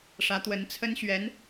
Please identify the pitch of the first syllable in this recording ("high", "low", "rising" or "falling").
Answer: rising